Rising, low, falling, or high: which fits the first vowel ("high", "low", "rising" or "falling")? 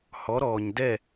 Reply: rising